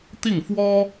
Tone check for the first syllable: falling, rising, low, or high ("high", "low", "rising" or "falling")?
falling